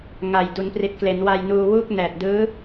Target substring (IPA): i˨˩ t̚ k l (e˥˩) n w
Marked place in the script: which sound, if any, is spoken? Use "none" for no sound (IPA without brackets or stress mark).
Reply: e˩˦